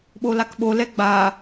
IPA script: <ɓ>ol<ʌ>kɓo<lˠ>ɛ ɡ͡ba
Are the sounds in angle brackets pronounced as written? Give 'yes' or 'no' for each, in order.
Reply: yes, no, no

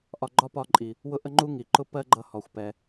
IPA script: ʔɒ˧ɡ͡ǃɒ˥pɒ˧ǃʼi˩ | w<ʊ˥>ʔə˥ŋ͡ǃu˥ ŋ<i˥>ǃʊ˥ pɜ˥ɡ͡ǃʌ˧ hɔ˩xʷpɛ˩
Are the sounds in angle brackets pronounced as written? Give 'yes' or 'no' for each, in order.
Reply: yes, no

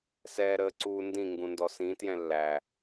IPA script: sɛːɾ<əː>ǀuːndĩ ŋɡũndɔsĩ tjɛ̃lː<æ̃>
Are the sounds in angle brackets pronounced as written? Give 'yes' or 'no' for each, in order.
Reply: yes, no

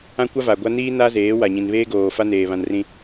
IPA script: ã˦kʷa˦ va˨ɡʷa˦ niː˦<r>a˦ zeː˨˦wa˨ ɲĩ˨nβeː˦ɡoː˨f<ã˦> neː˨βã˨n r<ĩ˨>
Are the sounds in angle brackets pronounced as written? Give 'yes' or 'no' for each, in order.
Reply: no, no, yes

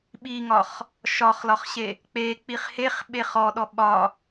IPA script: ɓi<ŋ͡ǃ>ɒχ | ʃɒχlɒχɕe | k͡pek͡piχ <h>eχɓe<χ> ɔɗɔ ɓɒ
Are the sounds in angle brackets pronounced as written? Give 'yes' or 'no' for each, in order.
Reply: no, yes, yes

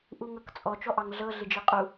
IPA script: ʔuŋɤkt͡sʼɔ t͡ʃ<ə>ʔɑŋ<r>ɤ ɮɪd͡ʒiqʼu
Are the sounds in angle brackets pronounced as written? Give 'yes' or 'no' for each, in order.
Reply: no, no

